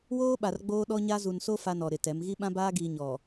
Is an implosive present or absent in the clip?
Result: present